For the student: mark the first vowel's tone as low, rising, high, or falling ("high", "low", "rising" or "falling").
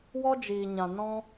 high